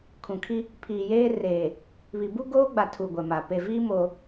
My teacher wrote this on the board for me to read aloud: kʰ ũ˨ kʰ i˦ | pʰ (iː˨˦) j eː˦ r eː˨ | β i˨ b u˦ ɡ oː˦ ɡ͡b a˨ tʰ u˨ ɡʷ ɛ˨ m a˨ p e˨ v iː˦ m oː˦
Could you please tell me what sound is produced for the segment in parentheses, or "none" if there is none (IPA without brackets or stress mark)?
iː˨